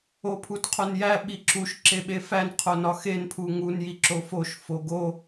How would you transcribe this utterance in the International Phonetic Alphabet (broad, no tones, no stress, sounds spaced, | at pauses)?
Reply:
o pʰ u t qʰ o n j æ ɓ i ǁ u ʃ ǁ e ɓ e f æ n qʰ o n ɒ x e n pʰ u ŋ u n j i ǁ o f o ʃ f o ɡ o